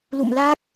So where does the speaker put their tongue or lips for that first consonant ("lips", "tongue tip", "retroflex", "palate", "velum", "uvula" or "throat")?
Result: tongue tip